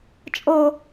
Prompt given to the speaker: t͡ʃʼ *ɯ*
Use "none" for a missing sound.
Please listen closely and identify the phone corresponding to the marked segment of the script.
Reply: ɤ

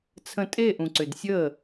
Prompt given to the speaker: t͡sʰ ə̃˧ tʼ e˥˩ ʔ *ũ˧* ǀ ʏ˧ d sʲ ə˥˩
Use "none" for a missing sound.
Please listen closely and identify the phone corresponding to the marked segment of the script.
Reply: ũ˧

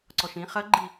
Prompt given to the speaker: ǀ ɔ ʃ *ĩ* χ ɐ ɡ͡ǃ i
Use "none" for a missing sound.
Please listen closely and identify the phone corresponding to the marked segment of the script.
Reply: ĩ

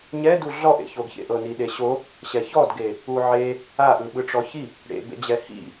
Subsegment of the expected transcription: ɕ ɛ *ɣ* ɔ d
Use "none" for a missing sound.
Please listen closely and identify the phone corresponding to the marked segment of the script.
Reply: ç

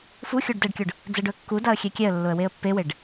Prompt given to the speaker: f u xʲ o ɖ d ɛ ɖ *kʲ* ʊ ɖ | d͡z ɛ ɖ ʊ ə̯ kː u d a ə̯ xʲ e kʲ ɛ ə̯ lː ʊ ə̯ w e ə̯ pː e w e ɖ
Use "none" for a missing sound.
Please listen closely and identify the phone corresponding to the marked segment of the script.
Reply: kʲ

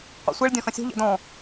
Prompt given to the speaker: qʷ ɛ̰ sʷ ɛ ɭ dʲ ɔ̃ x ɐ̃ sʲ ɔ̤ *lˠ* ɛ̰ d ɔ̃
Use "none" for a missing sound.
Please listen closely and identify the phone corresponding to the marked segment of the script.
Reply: ʎ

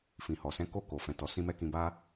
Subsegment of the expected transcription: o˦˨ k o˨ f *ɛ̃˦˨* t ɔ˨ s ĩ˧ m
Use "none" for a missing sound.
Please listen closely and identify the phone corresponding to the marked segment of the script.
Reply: ɛ̃˨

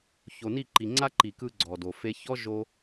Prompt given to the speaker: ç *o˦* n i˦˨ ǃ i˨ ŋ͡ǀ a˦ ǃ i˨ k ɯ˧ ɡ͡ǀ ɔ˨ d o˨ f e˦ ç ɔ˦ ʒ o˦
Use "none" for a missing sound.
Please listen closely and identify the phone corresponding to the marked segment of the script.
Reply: o˨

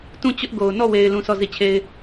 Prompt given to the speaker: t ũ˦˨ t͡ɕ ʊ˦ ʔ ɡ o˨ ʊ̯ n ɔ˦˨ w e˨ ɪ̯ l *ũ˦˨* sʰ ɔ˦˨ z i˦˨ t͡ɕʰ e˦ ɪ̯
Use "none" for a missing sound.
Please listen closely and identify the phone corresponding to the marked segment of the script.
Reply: ũ˦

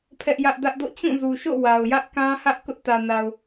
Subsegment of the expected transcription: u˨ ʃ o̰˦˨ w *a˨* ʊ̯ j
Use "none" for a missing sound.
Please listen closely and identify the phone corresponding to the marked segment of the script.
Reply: a˨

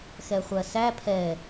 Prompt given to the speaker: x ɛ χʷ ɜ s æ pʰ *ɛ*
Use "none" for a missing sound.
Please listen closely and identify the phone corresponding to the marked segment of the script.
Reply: ɛ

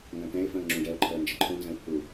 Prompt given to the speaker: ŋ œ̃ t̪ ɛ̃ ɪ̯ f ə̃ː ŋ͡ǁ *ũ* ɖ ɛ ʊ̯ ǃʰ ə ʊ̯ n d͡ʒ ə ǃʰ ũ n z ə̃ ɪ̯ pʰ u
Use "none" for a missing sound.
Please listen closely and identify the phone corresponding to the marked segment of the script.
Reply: ũ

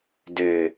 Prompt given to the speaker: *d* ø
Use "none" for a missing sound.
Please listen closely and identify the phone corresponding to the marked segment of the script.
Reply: d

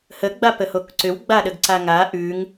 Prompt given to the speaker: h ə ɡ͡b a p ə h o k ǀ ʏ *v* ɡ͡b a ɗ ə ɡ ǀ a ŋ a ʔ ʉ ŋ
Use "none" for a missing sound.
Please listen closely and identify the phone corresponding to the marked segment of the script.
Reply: w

